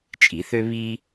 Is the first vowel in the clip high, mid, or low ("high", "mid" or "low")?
high